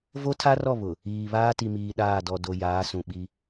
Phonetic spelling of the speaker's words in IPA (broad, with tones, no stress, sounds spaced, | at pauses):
v o˦ tʰ a˦ r ɔ˦˨ β ʊ˨ | iː˨ β aː˦ t i˨ m iː˨ ɗ aː˦˨ d ɔ˨ d o˨ j aː˨˦ s ũ˨ ɓ i˦